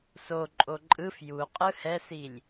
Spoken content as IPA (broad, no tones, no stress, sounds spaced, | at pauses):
s o ǃʼ o ǃʼ ɯ f j u qʼ ɯ h ɛ s i lʲ